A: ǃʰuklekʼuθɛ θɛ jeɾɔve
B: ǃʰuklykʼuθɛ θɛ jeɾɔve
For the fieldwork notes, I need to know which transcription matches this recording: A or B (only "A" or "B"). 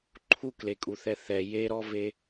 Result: A